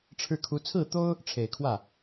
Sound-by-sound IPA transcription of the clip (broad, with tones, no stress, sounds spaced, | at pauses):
ʈ͡ʂʰ ɻ̩˥˩ kʰ u˧˥ t͡sʰ ɹ̩˥˩ t̪ o˥ ʊ̯ | ʈ͡ʂʰ e˨˩ ɪ̯ kʰ w ä˥˩